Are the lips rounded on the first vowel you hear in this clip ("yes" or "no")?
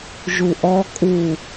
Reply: yes